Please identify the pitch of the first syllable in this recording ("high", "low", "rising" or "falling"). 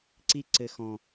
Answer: high